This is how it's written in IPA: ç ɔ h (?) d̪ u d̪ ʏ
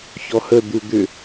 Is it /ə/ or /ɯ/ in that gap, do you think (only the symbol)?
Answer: ə